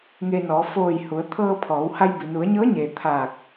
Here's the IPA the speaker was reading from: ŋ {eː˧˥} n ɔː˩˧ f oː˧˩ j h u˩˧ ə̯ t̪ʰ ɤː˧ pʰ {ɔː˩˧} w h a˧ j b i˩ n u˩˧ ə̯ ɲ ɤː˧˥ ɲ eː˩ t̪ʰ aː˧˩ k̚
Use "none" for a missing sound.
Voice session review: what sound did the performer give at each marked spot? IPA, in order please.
eː˧, ɔː˩˧

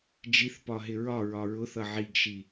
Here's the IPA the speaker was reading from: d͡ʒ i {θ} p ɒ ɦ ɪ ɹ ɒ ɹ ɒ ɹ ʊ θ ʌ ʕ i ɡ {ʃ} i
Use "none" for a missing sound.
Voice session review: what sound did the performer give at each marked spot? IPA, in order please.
θ, ʃ

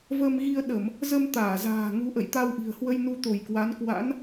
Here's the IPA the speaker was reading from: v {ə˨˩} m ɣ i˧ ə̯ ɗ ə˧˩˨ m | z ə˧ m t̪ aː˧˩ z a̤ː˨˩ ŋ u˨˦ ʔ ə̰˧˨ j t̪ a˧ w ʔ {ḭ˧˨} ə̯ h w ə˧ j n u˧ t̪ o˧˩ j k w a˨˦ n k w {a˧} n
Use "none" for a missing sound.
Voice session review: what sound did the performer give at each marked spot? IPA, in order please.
ə˧, i̤˨˩, a̰˧˥

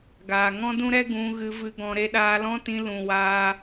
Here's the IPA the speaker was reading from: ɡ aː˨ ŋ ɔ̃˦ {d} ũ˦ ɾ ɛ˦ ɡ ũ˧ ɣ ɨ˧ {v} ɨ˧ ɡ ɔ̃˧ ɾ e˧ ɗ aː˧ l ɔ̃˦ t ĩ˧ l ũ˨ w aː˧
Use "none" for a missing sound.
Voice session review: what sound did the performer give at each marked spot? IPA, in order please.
d, v

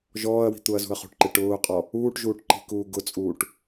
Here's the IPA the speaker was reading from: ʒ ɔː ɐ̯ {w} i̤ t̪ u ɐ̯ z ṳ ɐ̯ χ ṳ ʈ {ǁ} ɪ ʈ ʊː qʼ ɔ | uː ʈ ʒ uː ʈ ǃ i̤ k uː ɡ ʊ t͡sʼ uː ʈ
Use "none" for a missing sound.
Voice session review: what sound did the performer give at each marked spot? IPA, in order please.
w, ǃ

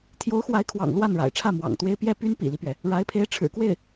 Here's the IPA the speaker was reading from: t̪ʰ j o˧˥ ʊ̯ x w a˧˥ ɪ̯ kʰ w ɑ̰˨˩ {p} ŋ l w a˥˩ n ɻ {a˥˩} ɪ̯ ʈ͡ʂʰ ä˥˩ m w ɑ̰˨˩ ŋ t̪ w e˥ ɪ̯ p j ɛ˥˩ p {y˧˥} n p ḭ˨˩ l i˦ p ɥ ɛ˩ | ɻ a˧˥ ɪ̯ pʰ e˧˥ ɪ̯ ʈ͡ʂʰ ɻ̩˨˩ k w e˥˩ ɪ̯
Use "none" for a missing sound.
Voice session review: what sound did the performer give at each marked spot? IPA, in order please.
none, a̰˨˩, y˥

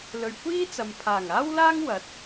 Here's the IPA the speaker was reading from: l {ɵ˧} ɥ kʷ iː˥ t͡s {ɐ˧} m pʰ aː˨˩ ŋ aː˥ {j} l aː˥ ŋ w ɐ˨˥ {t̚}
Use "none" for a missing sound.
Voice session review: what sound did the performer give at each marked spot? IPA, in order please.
ɵ˨, ɐ˨, w, t̚

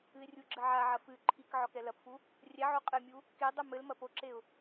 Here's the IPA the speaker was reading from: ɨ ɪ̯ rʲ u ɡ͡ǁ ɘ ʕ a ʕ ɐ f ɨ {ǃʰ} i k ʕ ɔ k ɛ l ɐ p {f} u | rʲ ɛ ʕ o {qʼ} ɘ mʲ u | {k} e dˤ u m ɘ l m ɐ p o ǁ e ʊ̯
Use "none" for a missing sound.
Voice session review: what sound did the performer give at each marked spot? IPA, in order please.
ǃʰ, f, qʼ, k

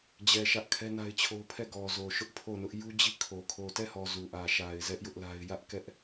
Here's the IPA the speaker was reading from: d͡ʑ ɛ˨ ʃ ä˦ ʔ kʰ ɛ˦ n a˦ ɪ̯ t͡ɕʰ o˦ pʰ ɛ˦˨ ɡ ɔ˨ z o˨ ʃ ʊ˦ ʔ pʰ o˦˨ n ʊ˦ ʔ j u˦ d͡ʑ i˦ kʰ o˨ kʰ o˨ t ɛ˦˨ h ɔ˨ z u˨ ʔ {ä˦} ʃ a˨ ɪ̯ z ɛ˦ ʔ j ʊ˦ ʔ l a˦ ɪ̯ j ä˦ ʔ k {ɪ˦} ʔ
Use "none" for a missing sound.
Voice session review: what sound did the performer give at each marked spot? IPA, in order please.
ä˨, ɛ˦

